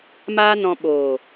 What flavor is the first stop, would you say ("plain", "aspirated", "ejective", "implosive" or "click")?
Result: implosive